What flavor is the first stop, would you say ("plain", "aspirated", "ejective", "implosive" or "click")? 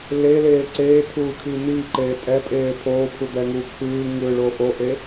click